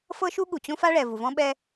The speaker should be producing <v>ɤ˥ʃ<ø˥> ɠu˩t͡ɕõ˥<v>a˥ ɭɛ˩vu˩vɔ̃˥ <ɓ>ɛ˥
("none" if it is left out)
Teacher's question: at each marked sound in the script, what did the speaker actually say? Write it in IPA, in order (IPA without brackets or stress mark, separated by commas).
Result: f, u˥, f, ɓ